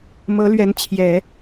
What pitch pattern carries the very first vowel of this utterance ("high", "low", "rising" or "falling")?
rising